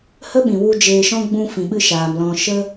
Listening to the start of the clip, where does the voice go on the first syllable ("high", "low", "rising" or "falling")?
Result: high